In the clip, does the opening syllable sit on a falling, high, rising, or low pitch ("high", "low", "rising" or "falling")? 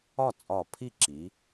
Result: falling